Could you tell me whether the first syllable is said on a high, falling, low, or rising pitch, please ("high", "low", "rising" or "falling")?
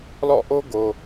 falling